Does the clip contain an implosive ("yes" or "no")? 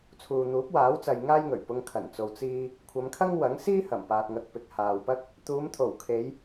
no